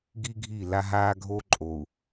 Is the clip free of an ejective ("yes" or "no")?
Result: no